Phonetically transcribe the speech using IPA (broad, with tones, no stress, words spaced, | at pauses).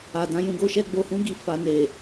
a˨dã˧ jũ˧ɡo˦ʃɛ˦ ɡ͡bo˧hũ˦ ɡi˧ fa˧ne˨